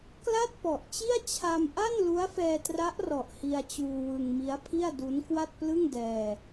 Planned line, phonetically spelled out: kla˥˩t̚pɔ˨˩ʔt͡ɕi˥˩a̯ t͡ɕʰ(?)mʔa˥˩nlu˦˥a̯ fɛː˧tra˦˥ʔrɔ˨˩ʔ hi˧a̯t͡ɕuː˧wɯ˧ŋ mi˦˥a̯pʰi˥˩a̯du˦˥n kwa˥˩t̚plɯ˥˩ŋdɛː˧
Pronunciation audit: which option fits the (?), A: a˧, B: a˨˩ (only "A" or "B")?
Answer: A